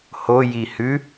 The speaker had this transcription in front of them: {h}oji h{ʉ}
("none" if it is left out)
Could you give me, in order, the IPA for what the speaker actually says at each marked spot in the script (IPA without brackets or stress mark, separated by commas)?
h, ʉ